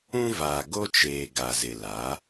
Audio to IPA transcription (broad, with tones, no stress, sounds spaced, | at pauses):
ũ˦ v aː˨ ɡ o˦ t͡ʃ eː˨ ɡ a˨ z ɪ˨ l a˨˦